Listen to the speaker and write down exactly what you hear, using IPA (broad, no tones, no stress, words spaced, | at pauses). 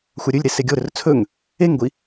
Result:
xʷaɾʲɵlʲɾe seɡʲoɾɵr t͡sʰɵŋ | eŋɡʷi